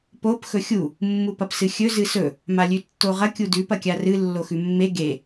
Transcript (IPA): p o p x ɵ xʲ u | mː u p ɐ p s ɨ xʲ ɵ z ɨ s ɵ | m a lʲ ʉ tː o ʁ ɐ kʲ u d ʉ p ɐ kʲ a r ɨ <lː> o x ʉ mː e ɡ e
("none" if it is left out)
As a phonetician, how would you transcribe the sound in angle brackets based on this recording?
lː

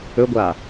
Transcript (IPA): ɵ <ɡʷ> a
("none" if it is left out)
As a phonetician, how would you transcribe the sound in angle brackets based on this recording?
ɡʷ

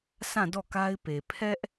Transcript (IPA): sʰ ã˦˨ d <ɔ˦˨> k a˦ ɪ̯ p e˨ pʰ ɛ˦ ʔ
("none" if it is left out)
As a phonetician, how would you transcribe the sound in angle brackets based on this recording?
ɔ˦˨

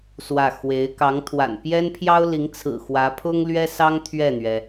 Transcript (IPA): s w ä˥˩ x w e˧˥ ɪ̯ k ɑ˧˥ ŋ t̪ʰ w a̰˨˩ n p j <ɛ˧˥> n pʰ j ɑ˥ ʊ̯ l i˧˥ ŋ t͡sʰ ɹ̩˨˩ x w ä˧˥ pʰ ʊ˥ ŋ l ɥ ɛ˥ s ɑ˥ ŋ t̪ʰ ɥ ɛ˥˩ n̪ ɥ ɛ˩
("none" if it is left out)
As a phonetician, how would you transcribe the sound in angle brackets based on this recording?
ɛ˥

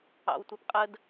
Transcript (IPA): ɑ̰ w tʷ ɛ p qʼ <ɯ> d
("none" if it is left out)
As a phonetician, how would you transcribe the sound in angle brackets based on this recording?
ə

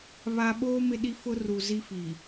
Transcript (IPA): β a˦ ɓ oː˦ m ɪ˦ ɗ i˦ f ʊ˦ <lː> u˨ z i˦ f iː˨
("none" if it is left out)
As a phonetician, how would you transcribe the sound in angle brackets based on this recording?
r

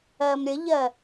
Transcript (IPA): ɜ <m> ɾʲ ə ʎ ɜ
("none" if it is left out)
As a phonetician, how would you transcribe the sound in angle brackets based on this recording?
m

